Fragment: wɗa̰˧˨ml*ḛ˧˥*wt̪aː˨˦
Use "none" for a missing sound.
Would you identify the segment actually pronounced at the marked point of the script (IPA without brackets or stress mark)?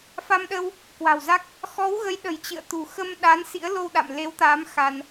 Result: e˨˦